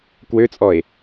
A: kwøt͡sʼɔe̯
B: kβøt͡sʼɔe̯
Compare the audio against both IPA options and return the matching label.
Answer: A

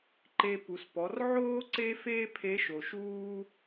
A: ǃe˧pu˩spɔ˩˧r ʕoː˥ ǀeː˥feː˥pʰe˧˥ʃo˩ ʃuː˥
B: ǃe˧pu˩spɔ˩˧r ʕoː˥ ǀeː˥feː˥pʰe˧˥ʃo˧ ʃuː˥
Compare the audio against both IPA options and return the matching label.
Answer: A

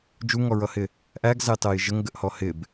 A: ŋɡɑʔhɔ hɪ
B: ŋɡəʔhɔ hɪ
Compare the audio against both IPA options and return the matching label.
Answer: B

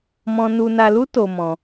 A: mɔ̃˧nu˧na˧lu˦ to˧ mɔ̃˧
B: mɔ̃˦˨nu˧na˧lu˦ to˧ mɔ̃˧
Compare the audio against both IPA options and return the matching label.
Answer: A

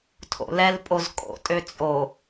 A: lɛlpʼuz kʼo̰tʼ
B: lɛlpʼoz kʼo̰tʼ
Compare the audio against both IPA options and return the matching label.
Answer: B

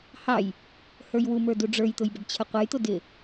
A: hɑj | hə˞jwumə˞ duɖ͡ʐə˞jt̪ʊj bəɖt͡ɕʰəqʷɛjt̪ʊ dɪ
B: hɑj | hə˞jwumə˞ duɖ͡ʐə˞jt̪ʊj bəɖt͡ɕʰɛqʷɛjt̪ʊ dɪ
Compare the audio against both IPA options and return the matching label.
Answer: A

